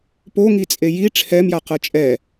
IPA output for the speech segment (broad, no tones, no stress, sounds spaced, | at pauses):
p o ŋ i t͡sʼ e j i ʈ͡ʂʰ ɛ m j a q ɤ t͡ʃʼ ɛ